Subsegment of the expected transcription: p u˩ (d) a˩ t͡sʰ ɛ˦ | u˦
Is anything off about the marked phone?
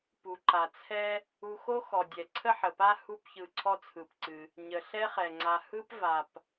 yes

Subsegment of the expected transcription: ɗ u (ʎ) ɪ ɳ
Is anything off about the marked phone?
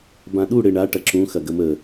yes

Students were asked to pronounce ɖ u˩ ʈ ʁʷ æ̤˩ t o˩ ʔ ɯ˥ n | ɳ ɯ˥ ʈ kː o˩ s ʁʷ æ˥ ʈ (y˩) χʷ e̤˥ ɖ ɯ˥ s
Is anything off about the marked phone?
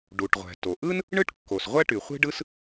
no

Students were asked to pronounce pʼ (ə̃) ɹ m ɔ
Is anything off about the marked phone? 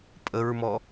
yes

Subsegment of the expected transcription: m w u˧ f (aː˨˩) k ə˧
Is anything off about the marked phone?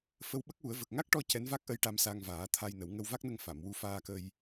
yes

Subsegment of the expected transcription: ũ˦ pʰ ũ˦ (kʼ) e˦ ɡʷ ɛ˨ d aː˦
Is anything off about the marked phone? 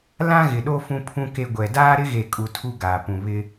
yes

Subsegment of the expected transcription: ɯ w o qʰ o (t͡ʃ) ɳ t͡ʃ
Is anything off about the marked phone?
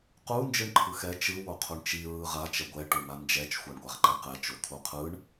yes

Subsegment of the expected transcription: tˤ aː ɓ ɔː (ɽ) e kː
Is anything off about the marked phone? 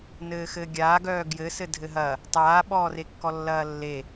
yes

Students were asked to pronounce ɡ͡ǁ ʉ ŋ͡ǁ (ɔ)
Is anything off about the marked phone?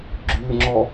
no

